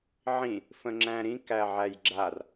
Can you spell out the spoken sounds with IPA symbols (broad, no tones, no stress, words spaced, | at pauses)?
ʕĩ | fə̃ŋ͡ǁæ̃ɾĩ kæʕæjɡ͡ǁar